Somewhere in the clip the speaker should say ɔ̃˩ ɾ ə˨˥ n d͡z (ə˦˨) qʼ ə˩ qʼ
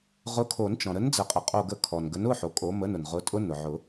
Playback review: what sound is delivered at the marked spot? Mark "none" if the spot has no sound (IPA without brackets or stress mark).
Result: ə˨˩˦